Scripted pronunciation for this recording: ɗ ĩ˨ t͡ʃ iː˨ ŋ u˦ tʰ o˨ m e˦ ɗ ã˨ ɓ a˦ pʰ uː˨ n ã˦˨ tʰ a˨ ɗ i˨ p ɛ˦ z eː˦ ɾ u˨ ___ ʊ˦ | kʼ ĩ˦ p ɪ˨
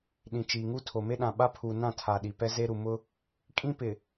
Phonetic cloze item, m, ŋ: m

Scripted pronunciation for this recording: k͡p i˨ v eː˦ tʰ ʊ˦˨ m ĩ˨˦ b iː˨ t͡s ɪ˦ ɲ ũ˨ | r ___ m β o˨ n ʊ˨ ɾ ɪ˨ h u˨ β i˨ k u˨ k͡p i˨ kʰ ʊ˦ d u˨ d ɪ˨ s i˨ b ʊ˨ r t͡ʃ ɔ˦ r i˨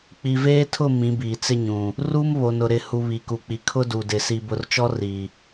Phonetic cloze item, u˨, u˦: u˦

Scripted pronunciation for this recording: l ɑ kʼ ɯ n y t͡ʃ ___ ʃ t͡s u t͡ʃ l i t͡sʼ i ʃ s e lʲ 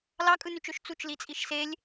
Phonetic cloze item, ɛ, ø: ø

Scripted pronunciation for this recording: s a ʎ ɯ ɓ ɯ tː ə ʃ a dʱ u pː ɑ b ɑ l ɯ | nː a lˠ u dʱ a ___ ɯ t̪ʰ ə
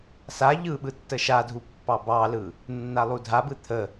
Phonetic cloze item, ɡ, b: b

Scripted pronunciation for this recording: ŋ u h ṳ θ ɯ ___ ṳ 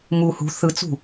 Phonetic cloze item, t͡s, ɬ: t͡s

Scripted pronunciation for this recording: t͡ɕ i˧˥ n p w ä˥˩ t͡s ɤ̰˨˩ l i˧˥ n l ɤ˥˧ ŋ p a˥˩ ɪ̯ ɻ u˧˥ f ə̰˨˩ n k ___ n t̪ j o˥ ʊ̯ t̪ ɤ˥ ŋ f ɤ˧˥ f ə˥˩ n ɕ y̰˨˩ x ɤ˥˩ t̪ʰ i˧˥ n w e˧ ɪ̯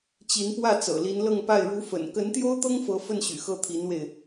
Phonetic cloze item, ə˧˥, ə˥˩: ə˧˥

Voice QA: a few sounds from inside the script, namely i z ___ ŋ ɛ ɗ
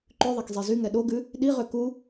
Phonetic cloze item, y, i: y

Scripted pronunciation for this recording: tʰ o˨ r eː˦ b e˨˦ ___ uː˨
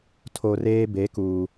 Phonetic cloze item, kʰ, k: k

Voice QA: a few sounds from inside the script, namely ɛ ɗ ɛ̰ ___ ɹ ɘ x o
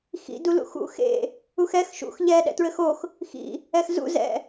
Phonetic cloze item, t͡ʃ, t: t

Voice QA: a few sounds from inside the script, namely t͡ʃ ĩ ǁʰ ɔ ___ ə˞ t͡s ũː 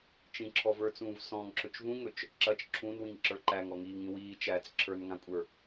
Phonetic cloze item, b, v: v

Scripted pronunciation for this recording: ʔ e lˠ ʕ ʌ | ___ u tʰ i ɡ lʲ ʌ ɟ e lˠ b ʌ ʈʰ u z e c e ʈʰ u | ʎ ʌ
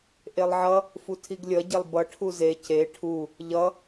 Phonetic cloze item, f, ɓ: f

